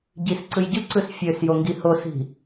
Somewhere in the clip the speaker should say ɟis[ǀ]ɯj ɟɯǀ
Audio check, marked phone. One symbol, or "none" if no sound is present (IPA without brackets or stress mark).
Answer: ǀ